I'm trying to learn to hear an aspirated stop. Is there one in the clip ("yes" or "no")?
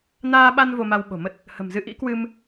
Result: no